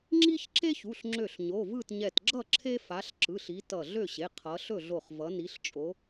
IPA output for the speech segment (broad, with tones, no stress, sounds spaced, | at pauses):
ŋ͡ǁ i˦ ç ǁ e˦ ç u˩˧˩ ɬ ŋ͡ǁ ø˧˩ ɬ ɲ o˩˧˩ v ɯ˥˨ t ɲ ɛ˧˩ t ɡ͡ǁ ʌ˥˨ ǁʰ e˦ f a˨˦ ɬ ǁ ɯ˩˧˩ ɬ i˨˦ t ʌ˧˩ ɮ ø˥˨ ɕ e˩˧˩ qʰ ʌ˨˦ ɬ ɵ˥˨ ɮ o˧˩ χ v ʌ˨˦ n i˨˦ ɬ t͡ʃʼ o˨˦